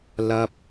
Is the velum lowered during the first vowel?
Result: no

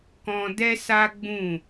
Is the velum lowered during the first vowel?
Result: yes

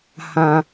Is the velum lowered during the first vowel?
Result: yes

